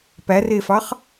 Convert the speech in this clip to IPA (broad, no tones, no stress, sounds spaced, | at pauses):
p æ r e f ɑ χ